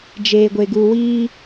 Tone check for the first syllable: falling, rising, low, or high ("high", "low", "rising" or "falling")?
low